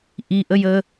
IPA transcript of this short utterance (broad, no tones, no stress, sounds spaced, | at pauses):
ʔ i ʔ ə j ə